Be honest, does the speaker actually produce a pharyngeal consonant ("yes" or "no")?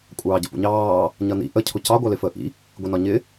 no